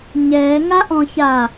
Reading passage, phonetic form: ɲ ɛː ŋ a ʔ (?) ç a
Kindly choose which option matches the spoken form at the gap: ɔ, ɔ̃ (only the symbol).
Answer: ɔ̃